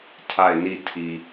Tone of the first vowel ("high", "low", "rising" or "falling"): falling